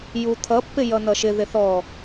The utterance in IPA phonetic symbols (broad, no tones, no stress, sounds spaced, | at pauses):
j u t̪ʰ ʌ pː ɪ j ʌ n̪ ʌ ʃ ɪ ð ɪ θ ɔ